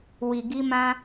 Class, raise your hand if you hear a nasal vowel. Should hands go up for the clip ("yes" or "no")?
yes